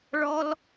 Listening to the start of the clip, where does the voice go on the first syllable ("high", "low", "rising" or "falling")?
high